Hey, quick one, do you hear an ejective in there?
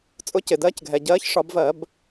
yes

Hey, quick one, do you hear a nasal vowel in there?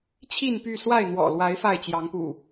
no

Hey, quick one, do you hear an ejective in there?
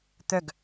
no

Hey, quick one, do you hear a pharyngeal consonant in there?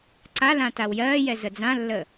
no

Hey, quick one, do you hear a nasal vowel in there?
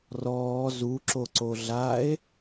no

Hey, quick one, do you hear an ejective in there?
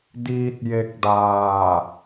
no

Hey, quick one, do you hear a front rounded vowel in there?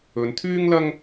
yes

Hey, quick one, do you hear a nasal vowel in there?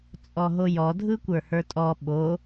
no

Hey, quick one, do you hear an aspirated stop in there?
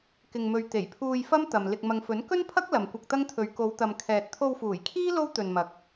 yes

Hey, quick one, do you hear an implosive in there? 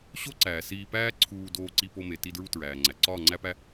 no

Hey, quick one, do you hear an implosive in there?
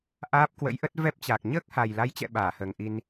yes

